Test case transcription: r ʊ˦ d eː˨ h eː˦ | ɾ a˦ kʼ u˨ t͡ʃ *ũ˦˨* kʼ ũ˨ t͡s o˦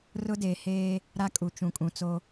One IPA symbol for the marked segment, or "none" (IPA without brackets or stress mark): ũ˨